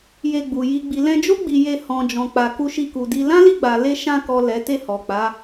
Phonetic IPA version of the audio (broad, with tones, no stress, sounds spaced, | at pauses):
j e˧ ɡ͡b u˨ j i˨ ɡ͡b i˨ l ɛ̃˧ d͡ʒ o˦ ɡ͡b i˧ j e˧ h ɔ̃˨ d͡ʒ ɔ̃˨ k͡p a˨ k u˧ ʃ i˧ k u˨ d i˧ l ã˦ l i˦˨ ɡ͡b a˨ l e˧ ʃ ã˧ k ɔ˨ l ɛ˨˦ t e˦˨ h ɔ˨ k͡p a˨˦